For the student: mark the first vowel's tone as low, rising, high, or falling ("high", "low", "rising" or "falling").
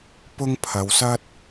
high